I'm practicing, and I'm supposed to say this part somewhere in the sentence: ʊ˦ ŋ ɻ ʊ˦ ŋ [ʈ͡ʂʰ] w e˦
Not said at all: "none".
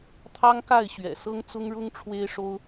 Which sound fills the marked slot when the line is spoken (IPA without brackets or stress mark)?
ʈ͡ʂʰ